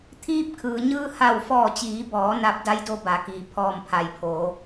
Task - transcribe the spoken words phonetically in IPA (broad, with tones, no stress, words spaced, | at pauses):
t̪ʰiː˧p̚kʰɯː˩ɲɯː˧ ha˧˩wfɔː˧˩t͡ɕiː˩˧bɔː˩˧ na˧p̚ da˧˥jdo˧ ba˩˧kiː˩ pʰɔː˧˩mpʰa˩j pʰoː˩˧